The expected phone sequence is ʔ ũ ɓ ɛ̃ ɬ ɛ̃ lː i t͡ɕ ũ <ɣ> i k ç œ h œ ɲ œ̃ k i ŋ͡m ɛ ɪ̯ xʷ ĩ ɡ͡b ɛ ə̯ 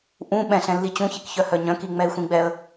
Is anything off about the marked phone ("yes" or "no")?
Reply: yes